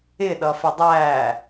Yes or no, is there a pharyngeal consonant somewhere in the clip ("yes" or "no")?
no